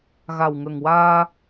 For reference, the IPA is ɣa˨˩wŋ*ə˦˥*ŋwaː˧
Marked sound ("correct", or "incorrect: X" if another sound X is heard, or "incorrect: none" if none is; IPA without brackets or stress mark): incorrect: ə˨˩